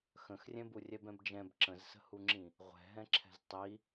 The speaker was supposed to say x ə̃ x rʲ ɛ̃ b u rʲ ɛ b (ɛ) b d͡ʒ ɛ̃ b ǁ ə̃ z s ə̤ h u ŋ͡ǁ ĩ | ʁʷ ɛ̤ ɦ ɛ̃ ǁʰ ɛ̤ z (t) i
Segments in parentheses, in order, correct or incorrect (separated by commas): incorrect, incorrect